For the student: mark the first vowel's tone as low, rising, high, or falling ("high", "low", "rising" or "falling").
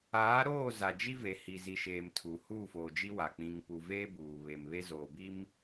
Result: rising